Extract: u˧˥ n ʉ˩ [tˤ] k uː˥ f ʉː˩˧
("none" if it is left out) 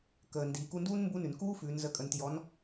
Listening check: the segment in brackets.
n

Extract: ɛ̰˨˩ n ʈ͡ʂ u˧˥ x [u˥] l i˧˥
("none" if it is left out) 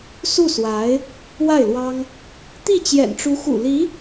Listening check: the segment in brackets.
ṵ˨˩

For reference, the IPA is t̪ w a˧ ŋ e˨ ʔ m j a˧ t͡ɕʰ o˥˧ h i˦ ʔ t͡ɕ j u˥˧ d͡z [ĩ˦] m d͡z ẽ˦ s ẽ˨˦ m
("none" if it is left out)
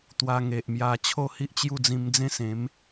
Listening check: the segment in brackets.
ĩ˧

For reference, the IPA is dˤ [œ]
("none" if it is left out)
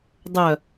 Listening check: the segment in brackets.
œ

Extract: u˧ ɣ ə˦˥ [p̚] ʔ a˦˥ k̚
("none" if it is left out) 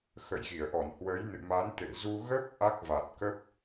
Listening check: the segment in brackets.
p̚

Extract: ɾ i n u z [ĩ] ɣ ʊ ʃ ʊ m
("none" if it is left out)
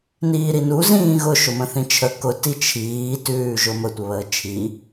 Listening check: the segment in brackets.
ĩː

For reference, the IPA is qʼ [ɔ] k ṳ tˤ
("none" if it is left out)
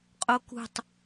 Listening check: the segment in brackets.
o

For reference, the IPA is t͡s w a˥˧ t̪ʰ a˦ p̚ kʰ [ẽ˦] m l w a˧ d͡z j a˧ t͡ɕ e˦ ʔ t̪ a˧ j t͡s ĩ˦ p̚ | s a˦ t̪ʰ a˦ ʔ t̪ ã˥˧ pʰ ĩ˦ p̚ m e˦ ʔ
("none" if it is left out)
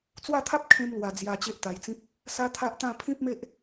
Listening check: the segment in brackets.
ẽ˦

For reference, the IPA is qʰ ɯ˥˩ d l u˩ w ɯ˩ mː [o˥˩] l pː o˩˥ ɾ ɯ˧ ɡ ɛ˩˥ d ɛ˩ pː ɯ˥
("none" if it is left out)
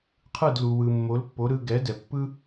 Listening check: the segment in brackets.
o˩˥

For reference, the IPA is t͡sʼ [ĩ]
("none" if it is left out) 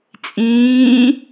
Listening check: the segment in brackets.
ĩː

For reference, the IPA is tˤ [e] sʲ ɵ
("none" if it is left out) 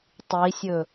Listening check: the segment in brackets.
i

